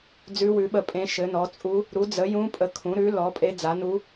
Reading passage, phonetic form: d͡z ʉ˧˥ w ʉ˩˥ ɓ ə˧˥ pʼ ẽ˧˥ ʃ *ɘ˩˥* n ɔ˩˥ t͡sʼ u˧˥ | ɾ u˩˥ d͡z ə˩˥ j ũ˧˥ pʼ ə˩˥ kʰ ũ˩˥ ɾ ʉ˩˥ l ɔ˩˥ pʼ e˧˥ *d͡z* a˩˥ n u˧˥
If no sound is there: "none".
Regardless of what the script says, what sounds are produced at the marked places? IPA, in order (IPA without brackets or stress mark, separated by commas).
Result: ɘ˩˥, d͡z